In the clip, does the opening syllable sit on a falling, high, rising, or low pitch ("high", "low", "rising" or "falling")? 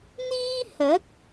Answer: high